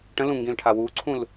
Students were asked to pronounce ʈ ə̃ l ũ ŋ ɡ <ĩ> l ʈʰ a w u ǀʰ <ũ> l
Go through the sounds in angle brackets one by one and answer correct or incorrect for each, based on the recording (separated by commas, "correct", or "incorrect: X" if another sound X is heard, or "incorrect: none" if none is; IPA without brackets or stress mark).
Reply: correct, correct